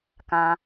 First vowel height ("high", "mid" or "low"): low